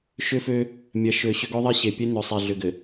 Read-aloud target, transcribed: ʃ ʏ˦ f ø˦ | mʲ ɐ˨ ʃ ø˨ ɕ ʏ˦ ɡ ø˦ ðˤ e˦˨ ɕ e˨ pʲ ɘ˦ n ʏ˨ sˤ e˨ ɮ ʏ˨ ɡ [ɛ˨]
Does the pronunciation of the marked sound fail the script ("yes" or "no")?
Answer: yes